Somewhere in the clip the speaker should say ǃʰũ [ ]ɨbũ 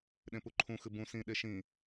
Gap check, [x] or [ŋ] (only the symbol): x